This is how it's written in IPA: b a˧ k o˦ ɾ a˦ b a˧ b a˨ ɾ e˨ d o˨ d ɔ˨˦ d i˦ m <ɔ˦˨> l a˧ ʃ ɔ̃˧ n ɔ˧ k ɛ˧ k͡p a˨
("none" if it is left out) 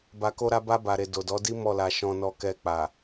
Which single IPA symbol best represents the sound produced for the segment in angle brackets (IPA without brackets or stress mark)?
ɔ˦˨